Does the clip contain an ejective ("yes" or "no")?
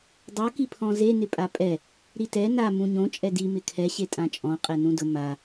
yes